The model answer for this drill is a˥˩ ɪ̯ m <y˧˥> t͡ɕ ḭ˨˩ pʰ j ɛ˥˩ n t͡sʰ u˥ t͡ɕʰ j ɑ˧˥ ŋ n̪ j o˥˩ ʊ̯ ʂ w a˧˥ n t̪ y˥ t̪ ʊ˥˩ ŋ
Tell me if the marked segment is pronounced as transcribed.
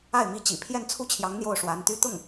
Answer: no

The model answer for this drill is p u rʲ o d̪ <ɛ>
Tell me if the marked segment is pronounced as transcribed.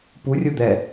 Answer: yes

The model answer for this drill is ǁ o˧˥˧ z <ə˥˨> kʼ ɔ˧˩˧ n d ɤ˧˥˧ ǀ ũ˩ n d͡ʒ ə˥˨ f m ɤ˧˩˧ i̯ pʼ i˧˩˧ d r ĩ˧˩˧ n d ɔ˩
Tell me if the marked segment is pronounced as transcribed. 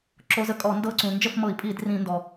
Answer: yes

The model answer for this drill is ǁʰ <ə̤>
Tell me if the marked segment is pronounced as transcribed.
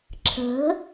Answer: yes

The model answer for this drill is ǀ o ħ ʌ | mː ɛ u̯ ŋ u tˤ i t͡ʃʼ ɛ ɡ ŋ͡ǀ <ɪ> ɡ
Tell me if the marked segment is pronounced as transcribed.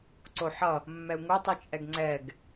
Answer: no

